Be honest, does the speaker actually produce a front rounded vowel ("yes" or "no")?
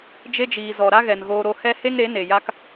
no